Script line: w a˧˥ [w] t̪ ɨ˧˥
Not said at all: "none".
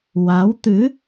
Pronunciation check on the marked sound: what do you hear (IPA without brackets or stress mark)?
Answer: w